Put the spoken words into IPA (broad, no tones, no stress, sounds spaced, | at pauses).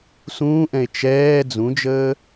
s ũː ʔ ɛ̃ e̯ t͡ʃ ɛː d͡z ũ d͡ʒ əː